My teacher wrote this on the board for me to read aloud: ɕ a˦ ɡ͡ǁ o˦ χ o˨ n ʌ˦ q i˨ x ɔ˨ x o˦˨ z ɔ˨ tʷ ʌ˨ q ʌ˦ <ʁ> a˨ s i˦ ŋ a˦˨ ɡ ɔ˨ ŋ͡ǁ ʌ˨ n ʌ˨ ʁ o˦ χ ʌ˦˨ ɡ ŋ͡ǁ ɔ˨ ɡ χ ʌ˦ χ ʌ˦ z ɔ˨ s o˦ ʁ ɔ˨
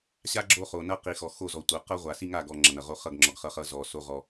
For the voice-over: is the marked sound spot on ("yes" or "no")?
no